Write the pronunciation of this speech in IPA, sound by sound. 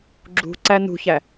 ɡ͡ǁṳ ǀænṳçæ

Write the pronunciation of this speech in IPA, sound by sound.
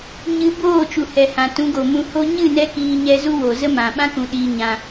ɲɨ˧ boː˦˨t͡ʃu˨hɛ˨ hã˨tũ˨˦ɡo˨ mũ˨ho˧ɲɨ˦˨ nɛ˦kiː˧ɲɛ˧zu˦ wo˨zə˦mã˨ ɓã˦kũ˨ ɗiː˧ɲã˧

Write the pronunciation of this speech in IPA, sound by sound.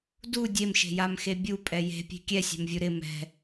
du dʲemʃe̤jamxe bʲupʼɛ je̤pʲe̤ kʲɛsʲɛ̤mvʲu ɾɪ mɛ̤

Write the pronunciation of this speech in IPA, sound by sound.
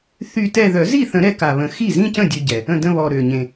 θy˥˧tɛ˥˧ ðœ˨˩˦zi˥˩θə̃˨˩˦ ɾɛ˧ka˨˩βə̃˨˩˦ xi˥˩zĩ˥˧cə̃˥˩ dʲø˧ ɟɛ˨˩ | ə̃˥˩də̃˥˧βɔ˨˩ ɾø˨˩ ɲẽ˨˩

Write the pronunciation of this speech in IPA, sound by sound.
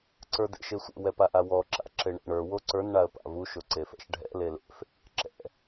ǀə˞dḛʃesʷḛ wɛpaʔawɔ ǁa̰ǁeɳḛɳə˞ woǀə˞n ɳaə̯pa̰vu ʃoǀefɛ̰ʃɖʱɛ̰ lelḛf | ǁɛ̰

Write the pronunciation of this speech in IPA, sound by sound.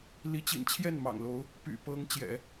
li˧˥t͡ɕḭ˨˩nt͡ɕʰjɛ˥˩n mɑ̰˨˩ŋlo˧˥ʊ̯ | py̰˨˩pɤ˧˥ŋ t͡ɕjɛ̰˨˩˦

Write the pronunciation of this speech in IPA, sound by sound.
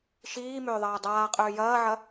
ʃiːmʏː ðˤɐːdˤaːqʼʏː jɐːʕɐ

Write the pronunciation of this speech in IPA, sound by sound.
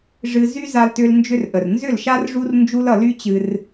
ʐɨ˧zy˦ za˧ltʏ˧l nd͡ʒʏ˧rʔə˨rnzʏ˦˨lʃa˦r ʐu˦rnd͡ʒu˦lʌ˧ ly˦t͡ɕɨ˧r

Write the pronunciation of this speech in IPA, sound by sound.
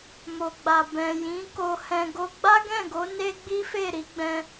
mo˨ɡ͡ba˨ bɛ̃˨jĩ˨˦ ko˧hɛ̃˧ ɡo˧ɡ͡ba˦ɡɛ̃˦˨ɡo˨˦ ne˦ɡ͡bi˦fe˦˨ ɾi˨˦ɡ͡bɛ̃˧

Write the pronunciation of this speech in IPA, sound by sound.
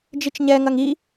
d͡ʒit͡ʃɲɛŋɐŋ i

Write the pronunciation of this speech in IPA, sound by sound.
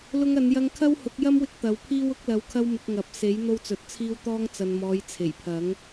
lʊ˧ŋɐ˨˧njɐ˧ŋkʰɐ˥w hʊ˨˥k̚ jɐ˥mwɪ˧k̚ t̪ɐ˨˥wpʰiː˥w ʊ˨˥k̚lɐ˨˧wkʰɐ˧wmɪ˨k̚ ŋɐ˨p̚se˨˥j n̪o˧wt͡sɵ˨t̚t͡sʰiː˧wt̪ɔː˧ŋ t͡sɐ˨nmɔː˨˧j t͡sʰe˨˩jpʰɐ˨˥ŋ

